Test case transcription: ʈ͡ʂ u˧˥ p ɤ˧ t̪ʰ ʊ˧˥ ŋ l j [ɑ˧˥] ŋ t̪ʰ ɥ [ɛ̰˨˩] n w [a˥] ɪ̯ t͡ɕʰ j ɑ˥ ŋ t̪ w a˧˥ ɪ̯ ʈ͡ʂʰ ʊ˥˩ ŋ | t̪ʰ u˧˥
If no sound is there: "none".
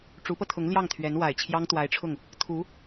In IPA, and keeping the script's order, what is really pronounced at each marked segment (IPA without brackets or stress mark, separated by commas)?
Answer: ɑ˥˩, ɛ˧˥, a˨˩